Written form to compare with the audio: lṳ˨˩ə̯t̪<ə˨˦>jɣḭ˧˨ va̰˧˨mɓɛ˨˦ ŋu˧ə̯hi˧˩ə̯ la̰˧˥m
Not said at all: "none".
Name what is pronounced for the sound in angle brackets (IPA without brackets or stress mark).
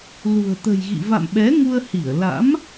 ə̤˨˩